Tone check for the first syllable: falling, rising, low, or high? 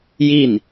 falling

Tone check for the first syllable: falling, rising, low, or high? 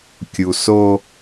low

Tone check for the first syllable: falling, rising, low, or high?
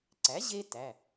rising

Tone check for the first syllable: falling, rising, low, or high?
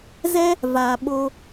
high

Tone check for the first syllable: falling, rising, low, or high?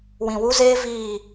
low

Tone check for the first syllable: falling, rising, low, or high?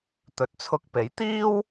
rising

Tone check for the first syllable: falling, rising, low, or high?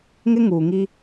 high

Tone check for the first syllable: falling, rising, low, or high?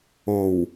low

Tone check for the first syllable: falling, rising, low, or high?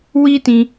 high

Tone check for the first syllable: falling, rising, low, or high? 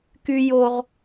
high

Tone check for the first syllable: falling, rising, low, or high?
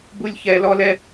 high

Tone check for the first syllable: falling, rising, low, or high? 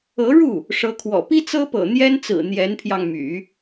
rising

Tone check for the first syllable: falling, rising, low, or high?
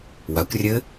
rising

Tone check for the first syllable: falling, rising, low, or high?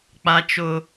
high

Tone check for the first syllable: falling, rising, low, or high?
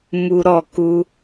high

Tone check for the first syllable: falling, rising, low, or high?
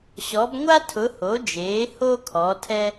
rising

